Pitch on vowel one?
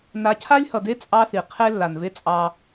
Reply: rising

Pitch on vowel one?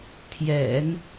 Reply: low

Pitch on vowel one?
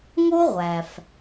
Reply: high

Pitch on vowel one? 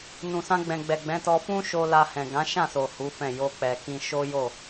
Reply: low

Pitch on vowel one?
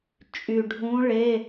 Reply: low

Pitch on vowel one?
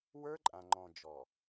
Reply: high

